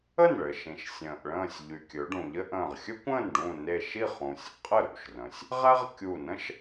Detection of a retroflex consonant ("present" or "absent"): present